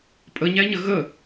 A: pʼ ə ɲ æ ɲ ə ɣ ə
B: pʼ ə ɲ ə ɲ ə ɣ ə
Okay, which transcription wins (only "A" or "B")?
A